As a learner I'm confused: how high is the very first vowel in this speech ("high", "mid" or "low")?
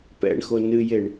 mid